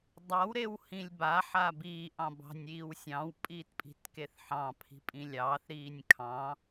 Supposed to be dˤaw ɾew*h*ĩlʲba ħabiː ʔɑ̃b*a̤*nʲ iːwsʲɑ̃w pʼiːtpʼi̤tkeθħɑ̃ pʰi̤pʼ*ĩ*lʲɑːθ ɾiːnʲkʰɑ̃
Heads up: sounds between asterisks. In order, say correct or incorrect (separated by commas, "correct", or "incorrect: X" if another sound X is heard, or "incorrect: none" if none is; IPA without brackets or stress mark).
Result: correct, incorrect: ɑ̤, correct